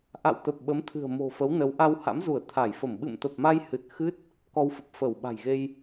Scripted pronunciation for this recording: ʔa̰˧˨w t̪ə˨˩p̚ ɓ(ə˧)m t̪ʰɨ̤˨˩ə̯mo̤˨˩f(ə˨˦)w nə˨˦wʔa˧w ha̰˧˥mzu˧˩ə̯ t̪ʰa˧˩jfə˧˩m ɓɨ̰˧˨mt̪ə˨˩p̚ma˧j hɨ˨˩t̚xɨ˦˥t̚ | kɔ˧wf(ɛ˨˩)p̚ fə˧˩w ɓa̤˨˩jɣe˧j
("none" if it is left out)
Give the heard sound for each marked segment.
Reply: ə˨˦, ə˨˦, ə˨˩

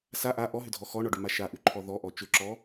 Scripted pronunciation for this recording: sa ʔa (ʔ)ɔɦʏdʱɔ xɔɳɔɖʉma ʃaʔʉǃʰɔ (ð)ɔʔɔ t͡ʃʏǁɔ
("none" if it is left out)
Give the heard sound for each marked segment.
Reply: ʔ, ð

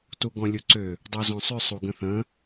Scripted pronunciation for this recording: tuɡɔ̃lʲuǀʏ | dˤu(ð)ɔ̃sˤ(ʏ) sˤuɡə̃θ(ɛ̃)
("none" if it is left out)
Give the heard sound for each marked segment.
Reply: z, ʏ, ə̃

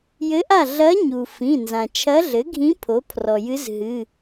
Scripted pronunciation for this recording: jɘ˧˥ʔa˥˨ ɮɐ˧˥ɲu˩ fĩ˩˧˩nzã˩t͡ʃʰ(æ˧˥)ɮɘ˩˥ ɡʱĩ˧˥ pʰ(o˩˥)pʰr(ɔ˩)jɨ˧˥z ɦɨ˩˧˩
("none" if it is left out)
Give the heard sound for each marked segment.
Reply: ɐ˧˥, o˩˥, ɔ˩

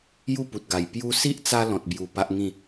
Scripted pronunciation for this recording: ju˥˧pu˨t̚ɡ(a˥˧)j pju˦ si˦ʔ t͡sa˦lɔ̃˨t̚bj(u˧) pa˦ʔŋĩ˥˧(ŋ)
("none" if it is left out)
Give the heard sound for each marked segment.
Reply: a˨˩, u˨˩, none

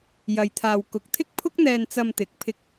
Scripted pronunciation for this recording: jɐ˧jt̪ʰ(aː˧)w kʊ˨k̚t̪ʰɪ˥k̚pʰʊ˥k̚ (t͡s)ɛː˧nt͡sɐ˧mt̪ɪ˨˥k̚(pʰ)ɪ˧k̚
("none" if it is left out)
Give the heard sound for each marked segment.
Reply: aː˧, n̪, pʰ

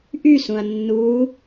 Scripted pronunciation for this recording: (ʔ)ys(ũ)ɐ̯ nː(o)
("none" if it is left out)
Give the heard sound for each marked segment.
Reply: ʔ, ũ, u

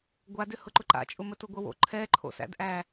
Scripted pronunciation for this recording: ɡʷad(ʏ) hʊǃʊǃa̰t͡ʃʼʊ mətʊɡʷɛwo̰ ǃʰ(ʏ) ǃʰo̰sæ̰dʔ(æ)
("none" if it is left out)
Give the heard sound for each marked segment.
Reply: ʏ, ɛ, æ

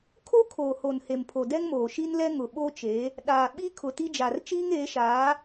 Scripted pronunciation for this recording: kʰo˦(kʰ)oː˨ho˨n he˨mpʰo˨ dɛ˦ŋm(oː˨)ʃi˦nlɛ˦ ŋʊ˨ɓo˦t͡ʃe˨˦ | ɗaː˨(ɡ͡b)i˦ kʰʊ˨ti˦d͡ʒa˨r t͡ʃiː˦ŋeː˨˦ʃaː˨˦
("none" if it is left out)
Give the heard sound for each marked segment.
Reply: kʰ, oː˨, ɓ

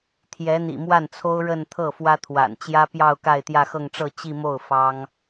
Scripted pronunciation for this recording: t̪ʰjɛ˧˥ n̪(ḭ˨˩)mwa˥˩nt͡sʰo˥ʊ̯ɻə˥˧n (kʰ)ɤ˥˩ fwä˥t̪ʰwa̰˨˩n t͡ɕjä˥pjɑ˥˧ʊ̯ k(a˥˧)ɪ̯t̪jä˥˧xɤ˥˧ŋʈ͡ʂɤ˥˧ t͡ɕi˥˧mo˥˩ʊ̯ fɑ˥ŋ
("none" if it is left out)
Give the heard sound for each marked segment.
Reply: ḭ˨˩, t̪ʰ, a˥˧

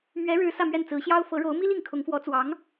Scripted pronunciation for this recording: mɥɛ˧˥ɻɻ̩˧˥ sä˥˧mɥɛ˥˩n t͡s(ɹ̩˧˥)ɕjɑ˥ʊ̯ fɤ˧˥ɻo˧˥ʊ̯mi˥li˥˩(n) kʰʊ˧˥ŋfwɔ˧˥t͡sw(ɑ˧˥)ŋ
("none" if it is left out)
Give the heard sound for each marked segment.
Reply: ɹ̩˧˥, ŋ, ɑ˧˥

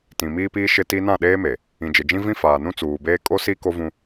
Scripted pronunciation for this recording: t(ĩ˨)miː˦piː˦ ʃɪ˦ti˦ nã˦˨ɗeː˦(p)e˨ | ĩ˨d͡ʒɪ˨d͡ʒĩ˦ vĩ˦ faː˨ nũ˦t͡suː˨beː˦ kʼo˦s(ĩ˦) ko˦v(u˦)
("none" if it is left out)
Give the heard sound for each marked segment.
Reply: ĩ˨, m, i˦, ũ˦

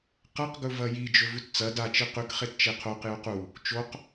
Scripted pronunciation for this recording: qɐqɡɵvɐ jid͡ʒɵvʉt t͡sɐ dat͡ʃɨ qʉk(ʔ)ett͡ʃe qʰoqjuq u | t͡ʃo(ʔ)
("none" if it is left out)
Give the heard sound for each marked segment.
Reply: χ, q

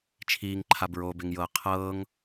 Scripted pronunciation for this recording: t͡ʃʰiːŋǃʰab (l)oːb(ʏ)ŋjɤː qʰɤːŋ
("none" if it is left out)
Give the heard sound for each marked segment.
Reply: ɹ, ɪ

